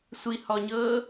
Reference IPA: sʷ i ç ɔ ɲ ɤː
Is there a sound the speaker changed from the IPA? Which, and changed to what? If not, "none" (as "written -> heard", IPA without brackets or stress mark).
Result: ç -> h